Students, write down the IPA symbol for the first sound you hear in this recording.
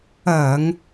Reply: ɐː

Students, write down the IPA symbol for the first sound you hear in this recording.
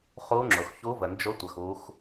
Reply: χ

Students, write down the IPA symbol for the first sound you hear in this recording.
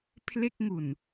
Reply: pʰ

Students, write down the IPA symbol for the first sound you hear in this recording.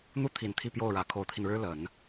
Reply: n̪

